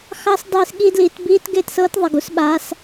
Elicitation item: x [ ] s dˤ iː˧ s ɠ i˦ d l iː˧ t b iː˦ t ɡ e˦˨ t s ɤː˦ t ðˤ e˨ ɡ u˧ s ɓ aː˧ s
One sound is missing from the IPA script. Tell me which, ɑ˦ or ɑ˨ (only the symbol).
ɑ˦